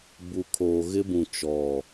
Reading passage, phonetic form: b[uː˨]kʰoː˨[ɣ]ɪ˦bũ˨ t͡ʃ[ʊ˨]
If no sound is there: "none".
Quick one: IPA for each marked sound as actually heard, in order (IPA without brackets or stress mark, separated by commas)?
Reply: u˨, ɣ, ɔ˨